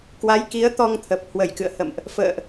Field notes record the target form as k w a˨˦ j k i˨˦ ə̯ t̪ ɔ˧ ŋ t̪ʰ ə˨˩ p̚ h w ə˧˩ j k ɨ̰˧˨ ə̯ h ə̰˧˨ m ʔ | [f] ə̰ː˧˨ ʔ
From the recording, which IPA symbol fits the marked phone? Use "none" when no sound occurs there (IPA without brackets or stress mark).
f